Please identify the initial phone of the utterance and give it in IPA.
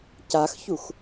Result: c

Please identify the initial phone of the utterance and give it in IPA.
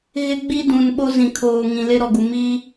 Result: ɣ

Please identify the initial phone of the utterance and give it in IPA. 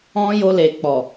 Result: ɔ̃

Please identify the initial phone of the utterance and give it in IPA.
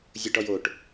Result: zʲ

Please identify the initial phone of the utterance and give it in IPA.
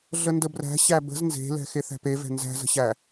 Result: ɮ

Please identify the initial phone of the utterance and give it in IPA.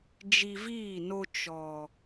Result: d͡ʒ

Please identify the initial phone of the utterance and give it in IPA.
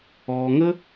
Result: ɔː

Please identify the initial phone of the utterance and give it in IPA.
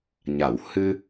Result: ɲ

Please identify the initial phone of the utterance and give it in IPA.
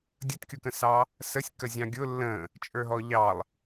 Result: dʲ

